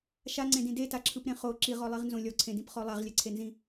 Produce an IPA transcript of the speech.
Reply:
ʃ a ŋ͡ǀ ẽ d ĩ d e t a ǁʰ ɯ p ɾ ẽ χ o ǁ i ʁ ɔ lˠ i ʁ n z õ lʲ ɔ ǀʰ ẽ d ĩ p χ ɔ lˠ a ʁ lʲ ɛ ǀʰ e n z ĩ

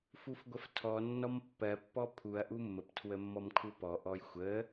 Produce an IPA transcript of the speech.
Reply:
f u f ɡʷ ə f tʰ ɔ nː ɔ m pː ɜ pː ɔ pʰ u ɐ̯ ʔ u mː ə p tʰ w ə mː ɔ m kʰ u p ɔ ʔ ɔ j xʷ ə

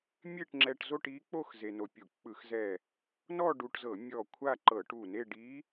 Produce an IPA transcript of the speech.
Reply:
mʲ e˥˧ ʈ ŋ͡ǁ ɛ˧ ʈ z o˥˧ ʈ i˧˥ k͡p o˥˧ x z e˧ n o˧ pʲ u˧˩˧ k͡p ɯ˧˩˧ x z ɛ˧˩ | n ɔ˥˧ ɖ u˧ ʈ z ɤ˧˩˧ mʲ ɔ˧˩ kʷʰ a˥˧ ǃ ɤ˧˩˧ ʈ u˧˩ n e˥˧ ɖ i˧˥

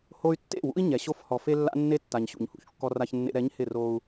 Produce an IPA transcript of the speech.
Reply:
h o˦ y̯ tː ḛ˦˨ w ṵ˦ i̯ ɲ ɛ˨ ɕ o˦ f h ɔ˨ f e˦ lː a̰˦ nː e˦ tː a˨ ɲ ɕ ṵ˨ ɲ h ṵ˦ ç kː ɔ˦ r a˦ ç nː ḛ˦ ɾ ɛ˨˦ ɲ h ɪ˦˨ r o˦ u̯

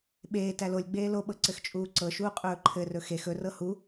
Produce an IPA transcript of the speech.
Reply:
ɓ eː t æ l o lʲ ɡ͡b eː l o ɓ ɤ ǀ ɘ x t͡ʃʼ uː ǀ ɤ ʃ uː qʼ ɵː ǃʰ ɘ r ɵ x e x ɵ r ɤ h u

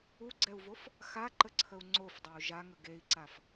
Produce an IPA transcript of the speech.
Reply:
u ɡ͡ǀ ɛ u̯ v o f | x a ǃ ə ǀʰ ə u̯ ŋ͡ǀ o f dˤ œ u̯ ʒ a ŋ ə ɡ e i̯ ǀ a f

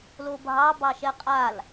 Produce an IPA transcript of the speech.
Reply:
l o bʱ ɑ b ɑ ʃ ɛ qʼ a l

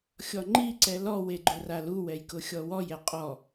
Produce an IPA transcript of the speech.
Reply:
xʲ ɔ ŋ͡ǃ i ǀ ɛ l ɔ w e ɡ͡ǃ ʊ r a l u w ɛ j k ʊ xʲ ɔ w ɔ j ɛ qʼ ɔ

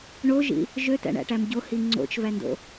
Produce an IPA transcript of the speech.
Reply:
ɳ o ʒ ḭ | ʒ ø t æ̰ ɳ æ̰ ʈ æ m ɟ o h i ŋ͡ǀ o̰ t͡ʃ v æ n d o̰

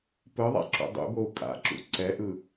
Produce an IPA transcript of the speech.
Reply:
p ɯ ðˤ a̰ ǁ ṵ dˤ ṵ b o u̯ kʼ a̰ ǁ ṵ ǀ ɛ ʔ ɯ

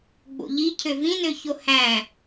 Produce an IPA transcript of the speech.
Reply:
ɡ͡b o̰ ʎ i cʰ ø v ĩ n ø ç o h æ̃

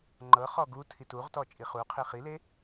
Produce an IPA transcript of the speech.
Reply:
ŋ͡ǃ ɤ χ ɔ ɡ u tʰ i t u ʁ t ɔ t͡ʃʼ i χ u qʰ i χ i l e

